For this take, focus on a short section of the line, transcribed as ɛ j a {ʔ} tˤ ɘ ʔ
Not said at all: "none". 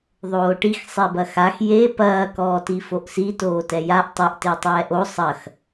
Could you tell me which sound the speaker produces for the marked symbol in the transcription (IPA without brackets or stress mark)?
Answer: ʔ